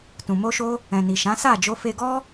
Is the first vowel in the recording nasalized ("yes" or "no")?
yes